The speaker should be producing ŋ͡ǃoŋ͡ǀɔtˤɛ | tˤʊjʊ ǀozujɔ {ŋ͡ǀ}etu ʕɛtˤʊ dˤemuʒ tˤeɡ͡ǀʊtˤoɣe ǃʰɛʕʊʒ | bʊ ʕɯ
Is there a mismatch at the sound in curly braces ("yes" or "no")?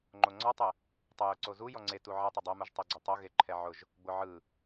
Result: no